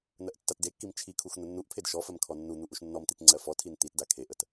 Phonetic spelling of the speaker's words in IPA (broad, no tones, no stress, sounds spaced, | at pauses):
n̪ ɜ ʔ tː a t d e kː i m t͡ʃʰ i kʰ u x n̪ ə nː u ʔ pʰ e d ʃ ɔ f ɜ m kʰ ɔ nː u n̪ u ʔ u ʃ nː ɔ m t̪ i t ŋ͡ǀ ɜ f ɔ tʰ i n t̪ i t d a kʰ e ʔ ə t